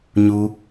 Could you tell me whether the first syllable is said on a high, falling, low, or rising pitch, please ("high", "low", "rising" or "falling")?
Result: high